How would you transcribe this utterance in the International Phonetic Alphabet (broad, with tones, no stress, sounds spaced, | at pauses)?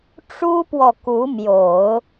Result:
ʈ͡ʂ u˥ p w ɔ˨ k u˧˥ m j o˨˩˦ ʊ̯